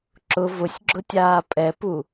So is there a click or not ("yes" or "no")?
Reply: yes